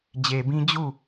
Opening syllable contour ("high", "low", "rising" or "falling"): low